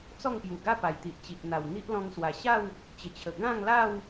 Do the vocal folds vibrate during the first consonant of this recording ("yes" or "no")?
no